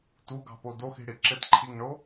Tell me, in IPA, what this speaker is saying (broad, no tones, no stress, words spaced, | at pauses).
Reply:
tuɡɑ̤po doxi̤ɽi ǁɘtǃʰiŋɳo